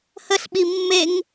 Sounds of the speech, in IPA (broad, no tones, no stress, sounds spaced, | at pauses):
h ə ɬ ɓ i mː e ŋ